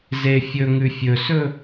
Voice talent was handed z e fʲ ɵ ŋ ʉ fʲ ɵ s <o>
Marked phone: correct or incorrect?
incorrect